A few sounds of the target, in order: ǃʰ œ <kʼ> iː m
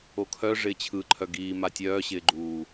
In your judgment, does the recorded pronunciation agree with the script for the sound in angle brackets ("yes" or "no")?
no